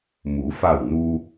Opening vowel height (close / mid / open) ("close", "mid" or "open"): close